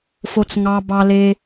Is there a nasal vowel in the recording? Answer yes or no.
no